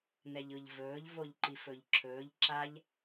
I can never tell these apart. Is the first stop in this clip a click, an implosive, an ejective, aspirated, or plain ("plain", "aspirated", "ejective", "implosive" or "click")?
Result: click